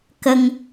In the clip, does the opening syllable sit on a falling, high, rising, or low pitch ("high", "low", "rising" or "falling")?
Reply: high